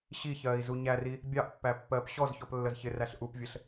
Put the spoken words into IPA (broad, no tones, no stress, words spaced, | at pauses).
ɕiçɜːi̯ zuɲæri | bʲɑʔpːæ pːɜːpɕɔzçɔp lːəzçɪræɬ ʔupvʲəɬ